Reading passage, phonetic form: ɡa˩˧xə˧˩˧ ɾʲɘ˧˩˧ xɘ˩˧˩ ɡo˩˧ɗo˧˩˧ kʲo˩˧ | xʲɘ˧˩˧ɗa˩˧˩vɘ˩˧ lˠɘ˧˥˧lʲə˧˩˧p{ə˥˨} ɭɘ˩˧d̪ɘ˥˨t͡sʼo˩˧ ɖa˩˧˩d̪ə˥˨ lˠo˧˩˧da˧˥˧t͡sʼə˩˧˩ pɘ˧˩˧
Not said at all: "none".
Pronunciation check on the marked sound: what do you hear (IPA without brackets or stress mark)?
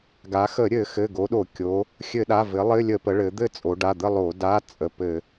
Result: ə˩˧